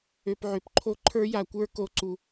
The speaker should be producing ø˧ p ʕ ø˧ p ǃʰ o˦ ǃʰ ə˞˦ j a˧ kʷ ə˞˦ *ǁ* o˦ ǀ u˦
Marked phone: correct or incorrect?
incorrect